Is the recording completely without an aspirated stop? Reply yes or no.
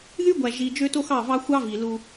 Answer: yes